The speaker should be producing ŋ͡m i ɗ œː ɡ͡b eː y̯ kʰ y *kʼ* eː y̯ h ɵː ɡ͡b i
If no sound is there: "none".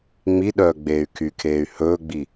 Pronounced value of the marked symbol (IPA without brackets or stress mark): kʰ